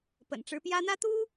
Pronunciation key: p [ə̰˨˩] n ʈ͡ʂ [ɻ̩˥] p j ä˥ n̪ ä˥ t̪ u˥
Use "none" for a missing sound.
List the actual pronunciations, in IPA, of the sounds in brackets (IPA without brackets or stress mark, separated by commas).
ə̰˨˩, ɻ̩˧˥